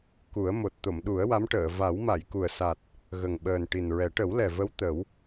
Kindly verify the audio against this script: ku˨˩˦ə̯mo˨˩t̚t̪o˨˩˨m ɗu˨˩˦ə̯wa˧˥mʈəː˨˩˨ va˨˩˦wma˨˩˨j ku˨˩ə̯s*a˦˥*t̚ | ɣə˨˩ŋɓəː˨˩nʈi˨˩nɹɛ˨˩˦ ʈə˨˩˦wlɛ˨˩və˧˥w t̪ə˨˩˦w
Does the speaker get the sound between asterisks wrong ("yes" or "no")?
yes